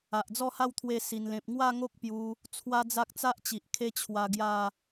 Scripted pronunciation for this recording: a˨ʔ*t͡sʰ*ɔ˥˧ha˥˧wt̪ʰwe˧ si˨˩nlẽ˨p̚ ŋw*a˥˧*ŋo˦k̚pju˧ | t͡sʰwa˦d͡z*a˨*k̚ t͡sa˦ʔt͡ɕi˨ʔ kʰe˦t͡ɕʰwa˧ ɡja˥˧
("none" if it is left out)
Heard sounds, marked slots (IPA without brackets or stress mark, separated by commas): d͡z, a˥˧, a˦